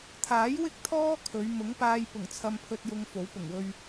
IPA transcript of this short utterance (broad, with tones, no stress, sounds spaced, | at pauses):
t̪ʰ aː˨˥ j w ɪ˥ k̚ t̪ʰ ɔː˥ kʰ ɵ˨˧ ɥ m ʊ˨˥ ŋ p aː˧ j p ʊ˨˩ ŋ t͡sʰ ɐ˧ m pʰ ɵ˧ t̚ j ʊ˧ ŋ f o˨˥ w p ʊ˨˩ ŋ w ɵ˧ ɥ